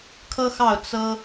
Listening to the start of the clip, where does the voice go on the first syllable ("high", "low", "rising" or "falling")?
high